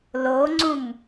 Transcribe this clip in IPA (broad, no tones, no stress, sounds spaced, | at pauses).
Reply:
l o ŋ͡ǀ ũ m